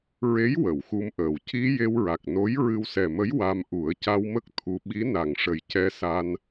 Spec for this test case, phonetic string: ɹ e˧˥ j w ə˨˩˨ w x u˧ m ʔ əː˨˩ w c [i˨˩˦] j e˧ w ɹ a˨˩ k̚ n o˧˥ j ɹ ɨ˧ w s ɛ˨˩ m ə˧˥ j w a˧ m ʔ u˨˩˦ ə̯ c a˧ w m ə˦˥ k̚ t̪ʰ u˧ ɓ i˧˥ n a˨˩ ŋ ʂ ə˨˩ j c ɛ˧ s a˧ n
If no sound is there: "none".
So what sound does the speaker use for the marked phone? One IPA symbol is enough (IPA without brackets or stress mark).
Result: i˧